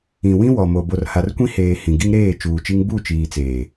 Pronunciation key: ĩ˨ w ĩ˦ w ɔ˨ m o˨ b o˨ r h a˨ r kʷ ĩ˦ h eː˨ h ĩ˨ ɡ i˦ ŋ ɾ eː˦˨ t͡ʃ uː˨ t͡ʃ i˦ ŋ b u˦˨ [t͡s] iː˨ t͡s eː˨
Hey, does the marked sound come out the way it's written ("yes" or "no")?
no